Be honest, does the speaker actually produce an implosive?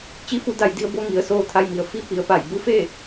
no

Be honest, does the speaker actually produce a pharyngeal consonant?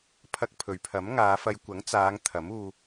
no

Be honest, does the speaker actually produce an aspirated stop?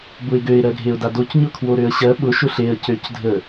yes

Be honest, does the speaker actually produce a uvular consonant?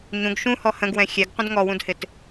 yes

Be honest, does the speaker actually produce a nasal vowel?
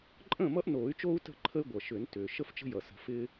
yes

